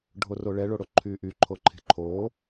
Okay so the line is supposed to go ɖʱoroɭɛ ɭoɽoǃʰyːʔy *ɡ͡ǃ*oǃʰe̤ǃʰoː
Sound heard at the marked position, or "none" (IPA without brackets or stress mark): ǃʰ